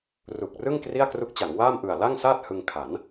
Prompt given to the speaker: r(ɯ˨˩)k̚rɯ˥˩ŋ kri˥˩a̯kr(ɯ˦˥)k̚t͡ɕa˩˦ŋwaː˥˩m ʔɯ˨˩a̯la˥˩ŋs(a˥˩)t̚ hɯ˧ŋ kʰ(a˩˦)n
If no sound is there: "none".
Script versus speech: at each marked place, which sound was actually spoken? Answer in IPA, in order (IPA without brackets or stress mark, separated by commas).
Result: u˨˩, u˦˥, aː˥˩, a˩˦